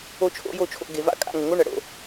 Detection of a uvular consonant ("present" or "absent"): absent